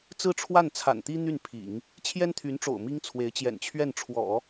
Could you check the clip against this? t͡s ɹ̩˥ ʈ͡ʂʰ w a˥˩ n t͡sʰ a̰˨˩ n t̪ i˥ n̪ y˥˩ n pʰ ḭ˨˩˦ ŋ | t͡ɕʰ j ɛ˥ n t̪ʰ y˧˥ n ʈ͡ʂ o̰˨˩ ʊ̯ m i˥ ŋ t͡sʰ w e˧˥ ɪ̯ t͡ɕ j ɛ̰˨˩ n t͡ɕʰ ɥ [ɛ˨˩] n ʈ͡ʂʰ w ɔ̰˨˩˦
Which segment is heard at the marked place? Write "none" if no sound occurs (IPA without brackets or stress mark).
ɛ˥˩